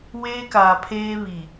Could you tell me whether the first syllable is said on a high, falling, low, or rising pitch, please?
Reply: high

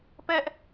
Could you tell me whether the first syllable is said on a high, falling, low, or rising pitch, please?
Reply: high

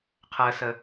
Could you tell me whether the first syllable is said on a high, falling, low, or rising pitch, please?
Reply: low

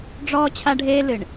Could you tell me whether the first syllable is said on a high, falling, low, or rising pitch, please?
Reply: high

